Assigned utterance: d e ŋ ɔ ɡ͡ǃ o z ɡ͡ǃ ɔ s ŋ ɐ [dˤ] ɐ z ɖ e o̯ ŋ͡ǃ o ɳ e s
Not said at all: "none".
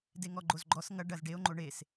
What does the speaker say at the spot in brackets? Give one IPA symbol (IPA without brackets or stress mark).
ɖ